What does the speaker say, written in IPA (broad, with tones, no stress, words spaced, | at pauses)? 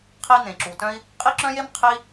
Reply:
qʰi˥n̪ẽ˩ǁu˩tœ̃˥i̯ | qʼi˥ǁœ̃˥je˥m qʰi˥